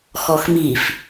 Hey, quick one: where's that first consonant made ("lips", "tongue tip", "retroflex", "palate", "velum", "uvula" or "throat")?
velum